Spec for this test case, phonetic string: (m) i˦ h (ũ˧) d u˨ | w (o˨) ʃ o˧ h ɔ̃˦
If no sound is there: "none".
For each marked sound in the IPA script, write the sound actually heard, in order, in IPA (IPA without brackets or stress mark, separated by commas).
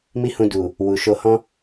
m, ũ˧, u˨